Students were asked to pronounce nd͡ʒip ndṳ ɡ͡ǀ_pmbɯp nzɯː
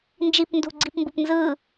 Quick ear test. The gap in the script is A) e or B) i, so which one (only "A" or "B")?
B